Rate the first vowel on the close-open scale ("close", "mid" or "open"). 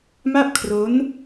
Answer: open